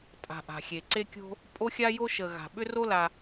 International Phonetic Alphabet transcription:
tʼ a̤˨ ʔ a̤˩ xʲ e˩ ǀ e˦ kʲ o̤˦ | pʼ o˥ xʲ a˥ j o˥ ʃ ə˨ ɣ a̤˩ ɓ ʏ˥ r o˥ l a˨

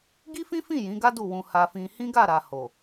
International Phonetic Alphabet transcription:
ɡ i˦ f ĩ˦ f ĩ˦˨ j ĩ˨˦ ɡ a˦ d u˦˨ w ũ˧ h a˧ f ĩ˧ h ĩ˦ ɡ a˦˨ ɾ a˨ h o˨

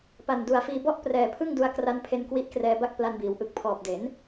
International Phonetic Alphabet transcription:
p a˨˩ n d u˨˩ a̯ f iː˧ b ɔ˥˩ ʔ p r ɛː˨˩ pʰ ɯ˥˩ ŋ d u˧ a̯ k r a˧ n pʰ e˧ n k w i˦˥ ʔ k r ɛː˧ b a˥˩ k̚ p l a˧ n b iː˩˦ w ʔ ɯ˨˩ k̚ pʰ ɔː˨˩ p̚ d e˩˦ n

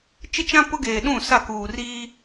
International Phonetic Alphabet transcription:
t͡ʃ ɪ˦ t͡ʃ ã˦ p ʊ˦ ɡ eː˨ ɗ ũ˦˨ s a˦˨ k uː˨ r iː˦

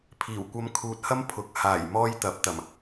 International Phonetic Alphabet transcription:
pʰ iː˨˩ w kʷ ɐ˨˧ m kʰ uː˨ t̚ h ɐ˥ m pʰ ʊ˨˥ k̚ h aː˨˩ j m ɔː˧ j t̪ ɐ˨˥ p̚ t̪ ɐ˨˩ m

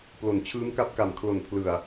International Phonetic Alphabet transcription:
p l o˨˩ n t͡ɕʰ ɯː˦˥ m k a˦˥ p̚ k a˨˩ m kʰ l o˨˩ n pʰ l ɯ˨˩ a̯

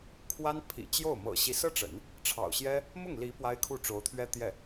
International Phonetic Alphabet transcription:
kʰ w a˥ n pʰ ḭ˨˩ t͡ɕ j o˥˩ ʊ̯ m ɤ̰˨˩ ɕ i˧˥ s ɤ˥ ʈ͡ʂ ə̰˨˩˦ n | ʈ͡ʂʰ ɑ̰˨˩ ʊ̯ ɕ j ɛ˥ | m ʊ˥˩ ŋ l i˧˥ p w a˥ ɪ̯ kʰ u˥˩ ʈ͡ʂ o˧˥ ʊ̯ t̪ʰ ɥ ɛ˥ t̪ j ɛ˥˩

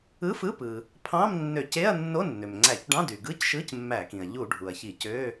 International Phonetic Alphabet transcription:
ɯ˧˥˧ f ɯ˧˥˧ p ɯ˩ | pʰ ɑ̃˧˥˧ m nː ø˧˩˧ c e˧˥˧ ɐ̯ nː o˧˥˧ nː ø˩ m ŋ͡ǀ æ˧˩˧ c ɖ ɑ̃˧˥˧ d y˩ ɡ ɯ˧˥˧ c ʃ ɯ˧˥˧ c mː æ˧˩˧ k ĩ˩ ɐ̯ ʎ u˧˩˧ ɖʱ u˩ ɐ̯ ç i˧˩˧ c ø˧˥˧

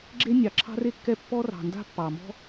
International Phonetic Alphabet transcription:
ɡ͡ǁ e˥ nʲ ɑ˩ ǁʰ ɑ̤˥ r e˥ kː ɛ˥ pː ɔ˥ r ɑ̤˩ n d a̤˥ pː ɑ˩ m ɔ̤˥

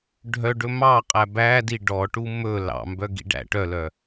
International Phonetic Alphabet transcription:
ɖʱ œ ɖ ɵ m ɑ qʼ æ b æ d i ɖ ɔ ʈ u m ɵ l ɑ̰ m b œ ɡ ḭ ɖ æ̰ ʈ œ l œ

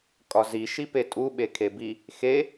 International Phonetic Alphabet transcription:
kʼ ɒ z i ʃ i p e tʼ u ɓ e kʰ e b i | x e

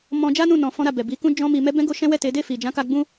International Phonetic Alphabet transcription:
m ɔ̃˧ d͡ʒ a˦ n ũ˦˨ n ɔ̃˧ f ɔ̃˦ ɾ a˦˨ b ɛ˨ b i˨˦ k ũ˦ d͡ʒ ɔ̃˦ m i˧ m ɛ˧ b ɛ̃˧ ɡ o˦ ʃ ɛ̃˦ w ɛ˦˨ t e˨˦ d e˦˨ f i˨ d͡ʒ ã˨˦ k a˧ ɡ͡b ũ˧

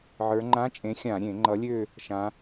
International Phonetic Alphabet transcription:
ʕ ə˞˩˧ ŋ͡ǃ ã˧˥˧ t͡ʃʼ ẽ˨˥ xʲ ã˧˩˧ ɾʲ ẽ˧˩˧ ŋ͡ǃ ʌ˨˥ lʲ ø˥˧ | ʃ ã˩˧

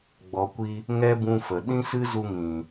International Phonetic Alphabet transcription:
ɡ͡b ɔ˨ kʷ i˧ | ŋ ɛ˦ b ũ˧ f ə˨ ɗ ĩ˦ s ɨ˦ z u˧ ŋ ĩ˨

